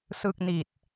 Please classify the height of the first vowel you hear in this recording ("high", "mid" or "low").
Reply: high